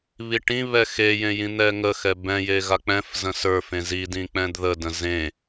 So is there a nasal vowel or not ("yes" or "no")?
yes